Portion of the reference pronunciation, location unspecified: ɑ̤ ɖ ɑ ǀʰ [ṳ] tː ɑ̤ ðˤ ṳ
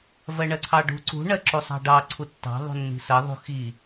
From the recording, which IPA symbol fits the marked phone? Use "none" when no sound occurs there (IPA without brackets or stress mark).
u